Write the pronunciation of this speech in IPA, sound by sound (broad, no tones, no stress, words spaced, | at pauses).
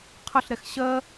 qʰəɬɾɛx ɕɜ